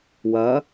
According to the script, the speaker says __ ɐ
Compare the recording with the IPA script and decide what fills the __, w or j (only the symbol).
w